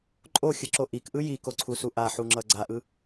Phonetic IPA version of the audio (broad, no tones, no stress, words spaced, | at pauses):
ǃʼoxʲɯǁo ʔikʔɯ jikoǀʰusu ʔaħuŋ͡ǁʌ ɡ͡ǀaʔɯ